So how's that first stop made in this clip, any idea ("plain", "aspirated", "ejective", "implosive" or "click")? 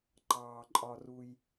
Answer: click